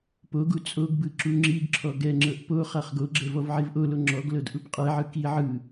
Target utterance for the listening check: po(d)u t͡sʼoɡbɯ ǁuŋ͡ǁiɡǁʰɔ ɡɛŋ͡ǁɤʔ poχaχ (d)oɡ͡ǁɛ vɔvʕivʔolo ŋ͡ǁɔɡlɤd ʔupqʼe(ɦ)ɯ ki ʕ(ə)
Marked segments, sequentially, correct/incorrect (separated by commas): incorrect, incorrect, incorrect, incorrect